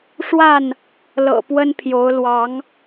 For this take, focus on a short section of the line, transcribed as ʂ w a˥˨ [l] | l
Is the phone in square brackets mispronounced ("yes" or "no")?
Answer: yes